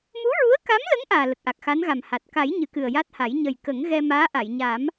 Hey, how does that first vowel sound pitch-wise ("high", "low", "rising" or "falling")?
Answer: rising